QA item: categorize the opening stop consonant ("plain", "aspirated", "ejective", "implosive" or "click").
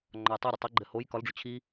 click